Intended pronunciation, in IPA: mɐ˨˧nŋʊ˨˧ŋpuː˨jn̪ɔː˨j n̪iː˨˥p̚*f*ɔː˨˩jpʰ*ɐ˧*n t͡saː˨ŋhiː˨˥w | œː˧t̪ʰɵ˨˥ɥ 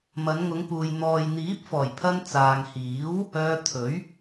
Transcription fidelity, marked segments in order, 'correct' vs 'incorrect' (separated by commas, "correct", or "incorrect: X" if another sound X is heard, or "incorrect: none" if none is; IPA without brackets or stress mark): correct, correct